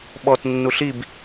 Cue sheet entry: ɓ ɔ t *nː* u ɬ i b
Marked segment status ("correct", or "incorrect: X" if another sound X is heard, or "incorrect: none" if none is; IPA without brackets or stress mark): correct